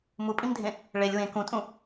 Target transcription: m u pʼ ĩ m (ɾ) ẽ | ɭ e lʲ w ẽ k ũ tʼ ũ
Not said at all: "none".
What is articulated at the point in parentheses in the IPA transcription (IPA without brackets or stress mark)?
dʱ